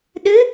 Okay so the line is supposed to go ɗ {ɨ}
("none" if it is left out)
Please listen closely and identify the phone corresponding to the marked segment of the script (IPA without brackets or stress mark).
ɨ